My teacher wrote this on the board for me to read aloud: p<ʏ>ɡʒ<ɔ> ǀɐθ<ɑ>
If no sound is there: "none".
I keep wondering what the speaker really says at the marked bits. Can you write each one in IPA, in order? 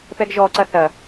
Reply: ɛ, ɔ, ɐ

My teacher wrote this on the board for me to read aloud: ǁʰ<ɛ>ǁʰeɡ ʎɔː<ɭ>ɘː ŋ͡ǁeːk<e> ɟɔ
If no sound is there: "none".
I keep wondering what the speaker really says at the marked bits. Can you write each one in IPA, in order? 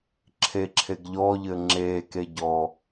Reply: e, ʎ, e

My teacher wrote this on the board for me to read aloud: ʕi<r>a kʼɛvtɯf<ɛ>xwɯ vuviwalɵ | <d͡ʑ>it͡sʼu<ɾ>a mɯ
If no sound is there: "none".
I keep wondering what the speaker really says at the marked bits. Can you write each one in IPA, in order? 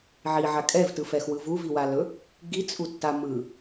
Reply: ʕ, ɛ, ɡ, tː

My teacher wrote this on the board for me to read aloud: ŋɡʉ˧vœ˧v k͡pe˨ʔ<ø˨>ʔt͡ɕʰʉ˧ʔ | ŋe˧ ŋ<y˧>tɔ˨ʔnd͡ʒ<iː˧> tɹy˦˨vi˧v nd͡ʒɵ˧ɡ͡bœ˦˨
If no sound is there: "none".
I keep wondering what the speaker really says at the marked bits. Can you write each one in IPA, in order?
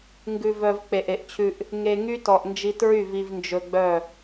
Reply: e˨, y˦, i˧

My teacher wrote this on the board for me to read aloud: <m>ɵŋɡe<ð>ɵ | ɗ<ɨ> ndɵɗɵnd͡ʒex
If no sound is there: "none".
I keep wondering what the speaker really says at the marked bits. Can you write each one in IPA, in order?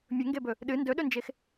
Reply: mʲ, b, ɨ

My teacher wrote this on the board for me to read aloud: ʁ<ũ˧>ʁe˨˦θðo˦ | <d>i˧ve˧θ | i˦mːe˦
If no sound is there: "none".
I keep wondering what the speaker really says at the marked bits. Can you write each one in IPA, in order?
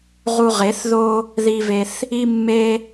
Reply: u˧, ð

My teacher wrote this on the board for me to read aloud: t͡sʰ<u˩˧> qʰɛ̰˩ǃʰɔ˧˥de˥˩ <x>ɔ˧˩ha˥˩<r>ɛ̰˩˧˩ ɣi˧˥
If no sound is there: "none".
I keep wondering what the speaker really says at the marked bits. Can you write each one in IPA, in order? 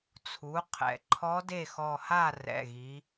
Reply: u˩˧, x, r

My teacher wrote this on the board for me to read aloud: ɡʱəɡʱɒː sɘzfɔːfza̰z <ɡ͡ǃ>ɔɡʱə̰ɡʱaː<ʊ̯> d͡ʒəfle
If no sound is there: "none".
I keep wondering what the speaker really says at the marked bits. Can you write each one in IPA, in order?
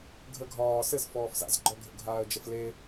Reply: ɡ͡ǃ, ə̯

